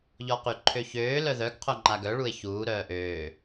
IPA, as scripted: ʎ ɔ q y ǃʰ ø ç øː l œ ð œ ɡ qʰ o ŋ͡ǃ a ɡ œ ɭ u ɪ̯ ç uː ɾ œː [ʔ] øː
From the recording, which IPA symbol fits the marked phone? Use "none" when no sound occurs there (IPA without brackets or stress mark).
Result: ʔ